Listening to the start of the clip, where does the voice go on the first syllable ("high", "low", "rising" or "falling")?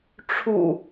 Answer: low